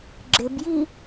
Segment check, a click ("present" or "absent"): present